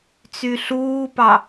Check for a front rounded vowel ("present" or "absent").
present